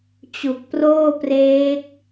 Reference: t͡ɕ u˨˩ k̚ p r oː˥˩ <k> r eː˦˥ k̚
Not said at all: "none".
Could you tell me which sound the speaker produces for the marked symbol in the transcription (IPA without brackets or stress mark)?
p